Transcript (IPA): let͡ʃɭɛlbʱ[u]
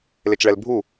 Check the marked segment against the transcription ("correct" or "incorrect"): correct